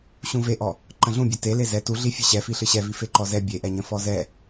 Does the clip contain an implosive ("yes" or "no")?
no